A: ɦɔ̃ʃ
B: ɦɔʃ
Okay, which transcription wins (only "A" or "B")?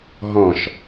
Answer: A